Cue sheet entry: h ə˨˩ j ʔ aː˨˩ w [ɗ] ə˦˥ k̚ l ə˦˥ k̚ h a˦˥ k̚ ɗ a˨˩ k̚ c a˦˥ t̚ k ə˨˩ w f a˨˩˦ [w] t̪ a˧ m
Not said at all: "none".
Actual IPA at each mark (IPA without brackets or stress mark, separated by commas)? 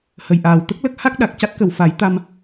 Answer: t̪, j